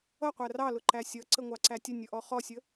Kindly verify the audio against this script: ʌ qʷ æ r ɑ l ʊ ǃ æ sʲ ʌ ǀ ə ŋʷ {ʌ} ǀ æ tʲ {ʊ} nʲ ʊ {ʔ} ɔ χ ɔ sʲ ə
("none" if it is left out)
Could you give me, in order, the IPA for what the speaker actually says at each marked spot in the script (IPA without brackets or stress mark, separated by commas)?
ɑ, ə, ʔ